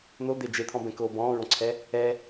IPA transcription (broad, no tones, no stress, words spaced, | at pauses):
nod̪e d͡ʒet̪ʰɔ̃bɛ̃koː bɔ̃ːɹɔ̃ǀʰɛ | ɛ